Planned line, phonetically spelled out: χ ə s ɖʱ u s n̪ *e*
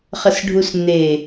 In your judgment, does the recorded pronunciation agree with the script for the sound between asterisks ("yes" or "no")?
yes